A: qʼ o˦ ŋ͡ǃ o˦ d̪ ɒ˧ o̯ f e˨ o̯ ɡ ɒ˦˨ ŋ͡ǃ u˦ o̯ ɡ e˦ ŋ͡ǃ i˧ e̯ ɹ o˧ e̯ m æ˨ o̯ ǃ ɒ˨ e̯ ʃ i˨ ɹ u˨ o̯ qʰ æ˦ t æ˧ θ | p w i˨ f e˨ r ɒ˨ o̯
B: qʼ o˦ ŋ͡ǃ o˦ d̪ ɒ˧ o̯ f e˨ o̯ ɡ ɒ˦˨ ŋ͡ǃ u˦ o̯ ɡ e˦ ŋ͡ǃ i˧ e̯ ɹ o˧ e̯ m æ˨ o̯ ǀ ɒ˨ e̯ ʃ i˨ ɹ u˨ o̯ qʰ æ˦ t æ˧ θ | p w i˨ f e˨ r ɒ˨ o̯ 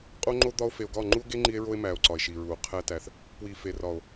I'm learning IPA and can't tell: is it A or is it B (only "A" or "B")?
B